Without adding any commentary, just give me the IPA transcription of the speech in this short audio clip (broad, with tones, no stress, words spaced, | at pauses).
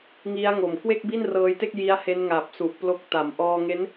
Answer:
ŋi˦˥a̯ŋo˨˩m kwe˥˩k̚bi˥˩nrɤː˧jte˥˩k̚ ji˦˥a̯he˦˥nŋaː˨˩p̚su˨˩ʔ plo˦˥k̚ ta˩˦mʔɔː˧ŋe˦˥n